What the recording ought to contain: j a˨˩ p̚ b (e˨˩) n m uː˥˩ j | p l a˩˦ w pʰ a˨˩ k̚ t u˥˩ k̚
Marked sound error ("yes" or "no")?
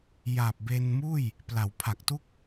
yes